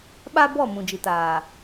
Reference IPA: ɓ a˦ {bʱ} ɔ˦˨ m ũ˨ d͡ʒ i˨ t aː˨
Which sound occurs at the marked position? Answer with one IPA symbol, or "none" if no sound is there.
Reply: b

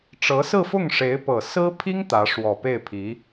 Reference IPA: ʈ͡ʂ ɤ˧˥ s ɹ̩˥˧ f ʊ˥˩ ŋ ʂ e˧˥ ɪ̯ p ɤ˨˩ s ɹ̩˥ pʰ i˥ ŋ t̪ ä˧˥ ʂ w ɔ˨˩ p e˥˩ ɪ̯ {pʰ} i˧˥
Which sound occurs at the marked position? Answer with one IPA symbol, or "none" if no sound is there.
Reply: pʰ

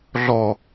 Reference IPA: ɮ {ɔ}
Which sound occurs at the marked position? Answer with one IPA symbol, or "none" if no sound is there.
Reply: ɔ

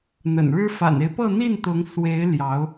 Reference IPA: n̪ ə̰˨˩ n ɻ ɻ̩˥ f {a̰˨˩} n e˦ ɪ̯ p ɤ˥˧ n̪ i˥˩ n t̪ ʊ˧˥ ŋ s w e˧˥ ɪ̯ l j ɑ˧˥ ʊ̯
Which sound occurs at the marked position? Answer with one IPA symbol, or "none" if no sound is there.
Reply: a̰˨˩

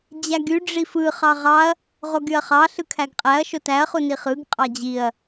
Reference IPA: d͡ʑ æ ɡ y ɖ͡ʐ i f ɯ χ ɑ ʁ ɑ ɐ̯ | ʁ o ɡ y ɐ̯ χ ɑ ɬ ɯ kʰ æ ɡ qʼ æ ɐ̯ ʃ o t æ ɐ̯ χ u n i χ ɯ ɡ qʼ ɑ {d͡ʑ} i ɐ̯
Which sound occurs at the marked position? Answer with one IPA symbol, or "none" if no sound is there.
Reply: d͡ʑ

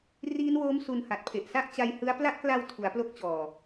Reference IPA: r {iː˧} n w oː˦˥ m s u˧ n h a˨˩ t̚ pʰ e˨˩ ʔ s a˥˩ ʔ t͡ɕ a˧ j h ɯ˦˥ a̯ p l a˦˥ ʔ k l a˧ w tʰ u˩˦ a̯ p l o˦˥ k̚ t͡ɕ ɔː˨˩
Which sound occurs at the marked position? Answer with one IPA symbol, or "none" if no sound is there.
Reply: iː˦˥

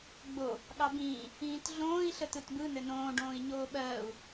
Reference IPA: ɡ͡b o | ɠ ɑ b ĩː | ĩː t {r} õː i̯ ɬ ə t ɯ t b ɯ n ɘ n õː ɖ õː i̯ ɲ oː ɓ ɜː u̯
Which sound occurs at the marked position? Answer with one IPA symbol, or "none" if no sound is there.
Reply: ɮ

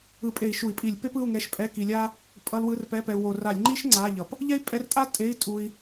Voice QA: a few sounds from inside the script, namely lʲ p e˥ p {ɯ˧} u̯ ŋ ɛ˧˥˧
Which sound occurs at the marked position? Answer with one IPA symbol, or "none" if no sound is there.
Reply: ɯ˧˥˧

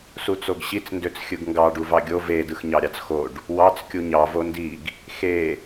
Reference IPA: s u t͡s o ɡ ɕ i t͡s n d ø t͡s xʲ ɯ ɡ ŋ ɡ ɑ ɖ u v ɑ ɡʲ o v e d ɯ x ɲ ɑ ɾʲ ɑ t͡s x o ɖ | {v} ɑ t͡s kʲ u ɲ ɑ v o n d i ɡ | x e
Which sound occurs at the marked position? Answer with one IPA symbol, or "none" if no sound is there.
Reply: w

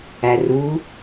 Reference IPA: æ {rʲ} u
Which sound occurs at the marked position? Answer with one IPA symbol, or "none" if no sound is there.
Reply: r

